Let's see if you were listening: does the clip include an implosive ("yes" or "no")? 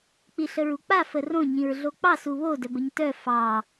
no